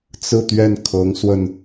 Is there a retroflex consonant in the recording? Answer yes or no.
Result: no